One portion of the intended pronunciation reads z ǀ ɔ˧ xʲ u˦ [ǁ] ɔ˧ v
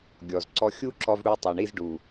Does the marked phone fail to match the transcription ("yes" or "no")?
no